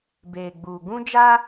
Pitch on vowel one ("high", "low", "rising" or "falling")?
low